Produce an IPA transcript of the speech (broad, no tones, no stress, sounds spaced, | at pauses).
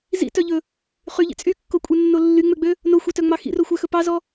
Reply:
z ḭ t œ ʎ ɵ | χ y ʎ ḭ t͡sʼ y kː o kʷʼ ɛ nː o lː y ŋ͡m ø ɡ͡b ø | n o xʷ ɛ t œ ŋ͡m ɑ x ḭ r o xʷ æ x ɵ p ɑ z ɔ